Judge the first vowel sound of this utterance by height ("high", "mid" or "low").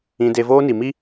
high